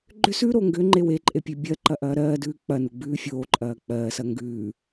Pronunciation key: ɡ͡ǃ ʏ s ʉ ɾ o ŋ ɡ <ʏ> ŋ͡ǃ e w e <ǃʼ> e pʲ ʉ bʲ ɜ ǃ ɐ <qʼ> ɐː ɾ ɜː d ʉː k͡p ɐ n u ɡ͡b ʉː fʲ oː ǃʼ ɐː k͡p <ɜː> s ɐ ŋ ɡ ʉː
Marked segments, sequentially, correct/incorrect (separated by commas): correct, correct, incorrect, correct